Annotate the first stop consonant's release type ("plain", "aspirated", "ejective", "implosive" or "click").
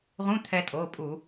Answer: aspirated